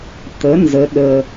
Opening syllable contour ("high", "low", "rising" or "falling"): rising